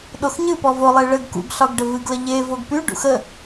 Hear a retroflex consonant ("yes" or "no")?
yes